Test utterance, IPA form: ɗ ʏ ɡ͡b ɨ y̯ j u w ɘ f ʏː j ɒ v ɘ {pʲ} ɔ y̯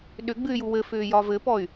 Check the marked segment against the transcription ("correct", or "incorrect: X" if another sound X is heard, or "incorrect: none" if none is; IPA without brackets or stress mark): incorrect: p